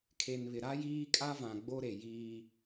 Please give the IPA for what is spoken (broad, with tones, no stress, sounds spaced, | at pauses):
kʰ e˨ n β ɪ˨ ɾ a˦ j iː˦ kʼ a˦ v ã˨ ɡ͡b o˦ ɾ e˨ j iː˦